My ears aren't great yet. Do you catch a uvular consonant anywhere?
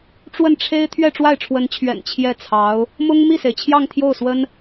no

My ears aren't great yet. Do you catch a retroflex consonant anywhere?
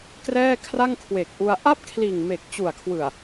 no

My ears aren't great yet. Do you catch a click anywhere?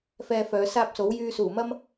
no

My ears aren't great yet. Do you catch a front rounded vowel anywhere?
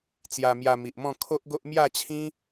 no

